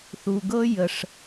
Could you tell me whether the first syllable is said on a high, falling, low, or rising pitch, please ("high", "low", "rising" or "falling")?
low